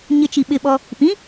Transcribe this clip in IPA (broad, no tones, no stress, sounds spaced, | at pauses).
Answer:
ɲ ɪ t͡ʃ i ɓ ɪ ɓ ɔ | p ĩ